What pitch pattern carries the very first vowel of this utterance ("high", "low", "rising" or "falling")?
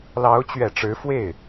rising